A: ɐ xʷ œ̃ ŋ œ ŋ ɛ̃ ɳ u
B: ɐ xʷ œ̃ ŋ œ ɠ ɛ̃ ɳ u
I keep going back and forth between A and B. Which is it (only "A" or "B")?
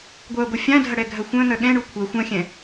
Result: B